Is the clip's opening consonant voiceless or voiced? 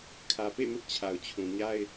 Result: voiceless